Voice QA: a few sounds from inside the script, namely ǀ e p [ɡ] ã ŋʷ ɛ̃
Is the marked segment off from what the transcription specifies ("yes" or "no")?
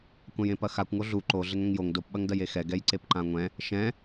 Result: yes